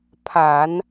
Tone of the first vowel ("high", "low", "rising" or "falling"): low